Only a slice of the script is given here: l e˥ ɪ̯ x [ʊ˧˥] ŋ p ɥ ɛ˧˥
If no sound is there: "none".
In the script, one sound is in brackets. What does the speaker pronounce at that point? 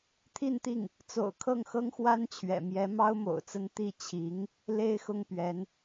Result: ʊ˥˩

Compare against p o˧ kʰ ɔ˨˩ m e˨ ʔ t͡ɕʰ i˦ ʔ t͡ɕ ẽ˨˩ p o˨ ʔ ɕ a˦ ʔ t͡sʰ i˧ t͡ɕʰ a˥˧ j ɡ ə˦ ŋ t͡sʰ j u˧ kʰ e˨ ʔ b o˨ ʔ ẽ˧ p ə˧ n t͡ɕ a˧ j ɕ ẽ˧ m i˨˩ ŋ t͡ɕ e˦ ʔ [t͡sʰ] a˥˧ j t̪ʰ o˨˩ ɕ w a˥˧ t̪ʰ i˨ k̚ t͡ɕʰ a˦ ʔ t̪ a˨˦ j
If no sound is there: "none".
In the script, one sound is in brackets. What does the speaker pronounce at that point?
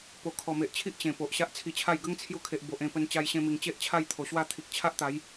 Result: t͡ɕʰ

